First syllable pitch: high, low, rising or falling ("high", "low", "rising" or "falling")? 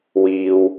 low